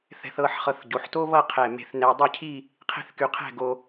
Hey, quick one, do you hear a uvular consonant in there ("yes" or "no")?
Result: yes